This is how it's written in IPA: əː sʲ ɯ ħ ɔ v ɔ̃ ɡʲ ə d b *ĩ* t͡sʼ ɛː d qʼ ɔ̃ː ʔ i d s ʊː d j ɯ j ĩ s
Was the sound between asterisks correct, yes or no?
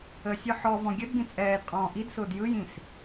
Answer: yes